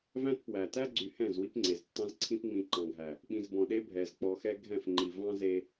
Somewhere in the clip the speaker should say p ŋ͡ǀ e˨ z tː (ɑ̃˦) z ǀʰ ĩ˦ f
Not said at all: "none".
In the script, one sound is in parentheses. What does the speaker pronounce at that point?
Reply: ɑ̃˦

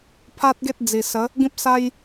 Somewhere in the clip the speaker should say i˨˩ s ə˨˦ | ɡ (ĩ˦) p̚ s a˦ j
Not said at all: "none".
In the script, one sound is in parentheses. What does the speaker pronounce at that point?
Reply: ĩ˦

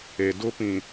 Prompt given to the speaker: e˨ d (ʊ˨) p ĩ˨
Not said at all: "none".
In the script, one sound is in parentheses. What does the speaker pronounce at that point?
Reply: ʊ˦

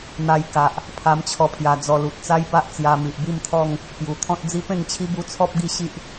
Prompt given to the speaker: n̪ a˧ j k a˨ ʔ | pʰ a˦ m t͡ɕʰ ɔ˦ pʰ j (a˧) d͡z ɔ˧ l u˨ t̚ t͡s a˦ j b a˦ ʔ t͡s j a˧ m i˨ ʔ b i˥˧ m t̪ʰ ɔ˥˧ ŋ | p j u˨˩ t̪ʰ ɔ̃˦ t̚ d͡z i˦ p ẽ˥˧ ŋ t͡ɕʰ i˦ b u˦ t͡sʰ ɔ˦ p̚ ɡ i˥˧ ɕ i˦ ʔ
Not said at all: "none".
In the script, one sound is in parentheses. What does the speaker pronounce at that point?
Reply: a˧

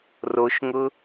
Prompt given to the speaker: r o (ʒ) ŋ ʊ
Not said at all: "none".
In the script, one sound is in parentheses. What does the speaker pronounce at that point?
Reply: ʃ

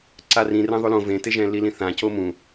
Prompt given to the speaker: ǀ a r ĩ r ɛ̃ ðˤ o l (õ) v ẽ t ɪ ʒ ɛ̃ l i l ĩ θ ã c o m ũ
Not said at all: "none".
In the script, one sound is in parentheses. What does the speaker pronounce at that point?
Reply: õ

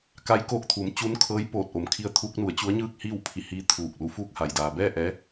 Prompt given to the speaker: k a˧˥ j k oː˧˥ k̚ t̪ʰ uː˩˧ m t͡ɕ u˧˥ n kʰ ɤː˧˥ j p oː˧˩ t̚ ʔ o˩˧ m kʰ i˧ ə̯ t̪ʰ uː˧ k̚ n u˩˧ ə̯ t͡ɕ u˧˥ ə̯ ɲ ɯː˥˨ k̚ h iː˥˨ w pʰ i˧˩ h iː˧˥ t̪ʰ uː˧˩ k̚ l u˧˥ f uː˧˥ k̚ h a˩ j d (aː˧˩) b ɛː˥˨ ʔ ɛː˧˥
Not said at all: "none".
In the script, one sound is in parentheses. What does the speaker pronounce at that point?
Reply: aː˩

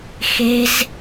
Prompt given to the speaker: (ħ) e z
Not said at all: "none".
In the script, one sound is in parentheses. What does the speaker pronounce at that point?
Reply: x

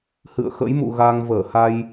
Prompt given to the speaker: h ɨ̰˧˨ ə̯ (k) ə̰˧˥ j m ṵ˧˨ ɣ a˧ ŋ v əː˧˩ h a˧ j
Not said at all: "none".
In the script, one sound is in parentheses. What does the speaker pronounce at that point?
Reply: x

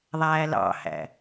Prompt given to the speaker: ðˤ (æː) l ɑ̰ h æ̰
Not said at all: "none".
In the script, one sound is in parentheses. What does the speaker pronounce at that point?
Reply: æː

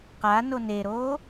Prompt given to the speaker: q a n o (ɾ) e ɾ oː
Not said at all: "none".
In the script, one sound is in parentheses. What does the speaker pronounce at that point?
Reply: n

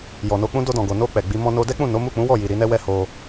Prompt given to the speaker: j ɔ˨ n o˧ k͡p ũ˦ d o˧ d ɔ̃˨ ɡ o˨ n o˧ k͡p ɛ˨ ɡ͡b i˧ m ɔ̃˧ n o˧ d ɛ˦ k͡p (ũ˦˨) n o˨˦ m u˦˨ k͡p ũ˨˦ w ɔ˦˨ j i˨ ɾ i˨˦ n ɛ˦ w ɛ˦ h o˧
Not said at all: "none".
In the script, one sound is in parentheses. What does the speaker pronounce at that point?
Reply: ũ˦˨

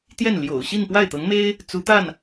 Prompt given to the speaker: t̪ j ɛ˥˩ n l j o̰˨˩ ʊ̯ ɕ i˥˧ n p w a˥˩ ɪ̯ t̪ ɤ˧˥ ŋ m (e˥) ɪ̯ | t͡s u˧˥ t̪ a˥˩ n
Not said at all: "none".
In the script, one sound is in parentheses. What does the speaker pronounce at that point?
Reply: e˥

